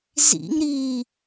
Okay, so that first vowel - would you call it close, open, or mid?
close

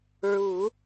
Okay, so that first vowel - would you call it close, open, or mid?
close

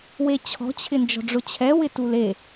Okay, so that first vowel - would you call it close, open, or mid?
mid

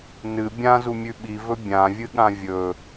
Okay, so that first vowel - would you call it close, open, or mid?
close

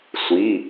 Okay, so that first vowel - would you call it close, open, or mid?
close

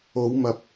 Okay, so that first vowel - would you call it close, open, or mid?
mid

